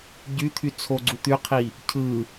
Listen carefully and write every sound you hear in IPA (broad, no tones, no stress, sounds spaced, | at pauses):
ɟ y t̪ʰ y t͡sʰ o ɡ͡ǀ u t̪ y qʰ i | cʰ ɯ